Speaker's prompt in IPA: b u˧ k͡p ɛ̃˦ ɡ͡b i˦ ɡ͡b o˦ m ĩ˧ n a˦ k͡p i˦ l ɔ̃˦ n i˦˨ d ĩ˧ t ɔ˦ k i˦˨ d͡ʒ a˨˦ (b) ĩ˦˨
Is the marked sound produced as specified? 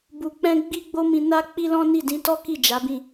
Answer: yes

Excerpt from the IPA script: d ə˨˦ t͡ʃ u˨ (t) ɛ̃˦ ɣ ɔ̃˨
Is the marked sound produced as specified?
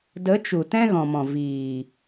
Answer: yes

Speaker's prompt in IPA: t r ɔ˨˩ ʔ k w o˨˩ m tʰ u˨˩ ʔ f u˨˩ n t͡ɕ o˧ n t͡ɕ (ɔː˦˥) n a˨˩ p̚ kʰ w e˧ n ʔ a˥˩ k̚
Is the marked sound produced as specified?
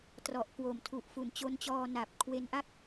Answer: no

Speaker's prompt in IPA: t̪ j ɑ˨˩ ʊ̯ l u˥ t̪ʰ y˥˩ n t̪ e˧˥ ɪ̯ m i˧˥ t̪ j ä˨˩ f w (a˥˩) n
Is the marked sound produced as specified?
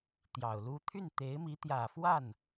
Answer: yes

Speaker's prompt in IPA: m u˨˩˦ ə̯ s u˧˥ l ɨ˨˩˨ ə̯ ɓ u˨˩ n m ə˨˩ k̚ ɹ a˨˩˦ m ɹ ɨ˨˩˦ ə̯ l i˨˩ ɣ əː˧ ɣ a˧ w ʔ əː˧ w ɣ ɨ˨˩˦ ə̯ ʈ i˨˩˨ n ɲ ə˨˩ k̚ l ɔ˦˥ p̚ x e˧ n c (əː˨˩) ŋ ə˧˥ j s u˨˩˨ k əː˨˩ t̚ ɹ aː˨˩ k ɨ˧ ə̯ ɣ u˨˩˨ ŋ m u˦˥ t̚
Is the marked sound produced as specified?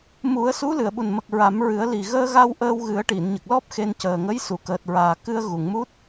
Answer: yes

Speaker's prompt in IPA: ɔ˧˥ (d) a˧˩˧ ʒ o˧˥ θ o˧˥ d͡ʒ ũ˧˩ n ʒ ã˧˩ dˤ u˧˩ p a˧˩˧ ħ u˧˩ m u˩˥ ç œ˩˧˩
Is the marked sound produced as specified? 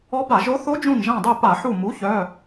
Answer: no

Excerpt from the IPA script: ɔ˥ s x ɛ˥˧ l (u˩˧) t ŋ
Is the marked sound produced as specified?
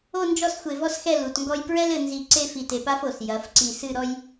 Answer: yes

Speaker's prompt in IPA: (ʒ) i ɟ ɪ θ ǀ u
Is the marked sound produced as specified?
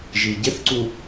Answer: yes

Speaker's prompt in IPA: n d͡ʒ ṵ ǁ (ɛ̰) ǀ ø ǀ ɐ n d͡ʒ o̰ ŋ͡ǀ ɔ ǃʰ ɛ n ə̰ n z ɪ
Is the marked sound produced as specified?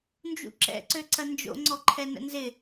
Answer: yes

